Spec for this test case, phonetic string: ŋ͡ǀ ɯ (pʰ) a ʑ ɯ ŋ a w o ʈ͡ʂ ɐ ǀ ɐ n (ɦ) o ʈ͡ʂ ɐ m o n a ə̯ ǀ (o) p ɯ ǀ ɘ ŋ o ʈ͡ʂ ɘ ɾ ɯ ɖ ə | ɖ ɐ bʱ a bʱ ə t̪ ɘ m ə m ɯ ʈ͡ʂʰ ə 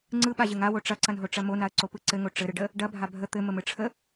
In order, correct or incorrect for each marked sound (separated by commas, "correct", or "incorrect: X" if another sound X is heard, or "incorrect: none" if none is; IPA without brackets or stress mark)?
incorrect: ɓ, correct, correct